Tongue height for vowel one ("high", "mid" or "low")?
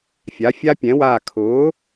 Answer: low